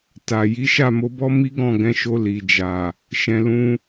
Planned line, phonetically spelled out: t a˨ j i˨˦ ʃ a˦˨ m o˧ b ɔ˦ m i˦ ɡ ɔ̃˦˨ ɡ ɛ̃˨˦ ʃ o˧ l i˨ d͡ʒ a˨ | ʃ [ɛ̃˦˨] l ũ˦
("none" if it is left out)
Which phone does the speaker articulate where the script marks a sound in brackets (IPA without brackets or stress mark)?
ɛ̃˧